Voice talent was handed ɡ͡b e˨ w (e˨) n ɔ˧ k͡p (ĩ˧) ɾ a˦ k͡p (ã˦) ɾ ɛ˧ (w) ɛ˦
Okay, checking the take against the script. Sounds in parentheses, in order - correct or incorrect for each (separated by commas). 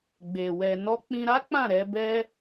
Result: incorrect, correct, incorrect, incorrect